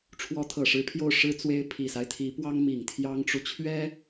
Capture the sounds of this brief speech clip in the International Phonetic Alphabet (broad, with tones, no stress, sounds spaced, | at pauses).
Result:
ʈ͡ʂʰ w ɔ˧˥ t̪ʰ ɤ˨˩ ʂ ɻ̩˧˥ pʰ j o˥˩ ʊ̯ ʂ ɻ̩˥ t͡s w e˥ ɪ̯ pʰ i˨˩ s a˦ ɪ̯ t̪ʰ i˧˥ p w ɑ˥ ŋ m i˨˩ ŋ t̪ʰ j ɑ˥ ŋ ʈ͡ʂ u˨ t͡ɕʰ ɥ ɛ˥